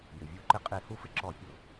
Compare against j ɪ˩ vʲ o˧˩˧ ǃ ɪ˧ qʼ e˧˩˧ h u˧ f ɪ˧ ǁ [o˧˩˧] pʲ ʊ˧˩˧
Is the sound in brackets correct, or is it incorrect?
incorrect